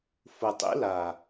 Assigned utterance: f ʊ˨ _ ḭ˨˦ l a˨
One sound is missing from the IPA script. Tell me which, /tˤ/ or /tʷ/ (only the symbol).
tˤ